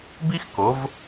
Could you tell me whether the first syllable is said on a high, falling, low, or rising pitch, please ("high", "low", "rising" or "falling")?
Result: high